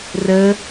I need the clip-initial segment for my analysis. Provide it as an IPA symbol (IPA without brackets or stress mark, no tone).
r